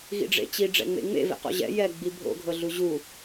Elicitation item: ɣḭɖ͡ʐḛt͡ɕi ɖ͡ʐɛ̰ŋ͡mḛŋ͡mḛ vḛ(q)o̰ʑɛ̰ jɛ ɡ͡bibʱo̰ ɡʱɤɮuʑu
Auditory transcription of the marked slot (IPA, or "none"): q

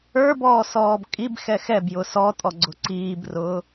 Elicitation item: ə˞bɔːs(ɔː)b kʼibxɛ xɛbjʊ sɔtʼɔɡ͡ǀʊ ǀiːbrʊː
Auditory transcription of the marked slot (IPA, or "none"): ɔː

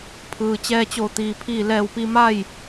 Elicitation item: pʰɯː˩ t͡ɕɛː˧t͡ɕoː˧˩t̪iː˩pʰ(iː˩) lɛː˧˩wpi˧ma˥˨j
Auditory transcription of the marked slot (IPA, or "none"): iː˧˩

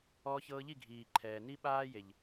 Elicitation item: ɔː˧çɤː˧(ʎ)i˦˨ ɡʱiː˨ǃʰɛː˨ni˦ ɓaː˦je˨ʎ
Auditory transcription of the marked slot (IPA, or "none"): ʎ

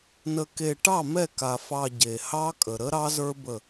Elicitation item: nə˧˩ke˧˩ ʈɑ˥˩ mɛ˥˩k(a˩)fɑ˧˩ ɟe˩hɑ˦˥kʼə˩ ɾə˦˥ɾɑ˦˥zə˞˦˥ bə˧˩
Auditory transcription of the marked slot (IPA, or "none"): a˩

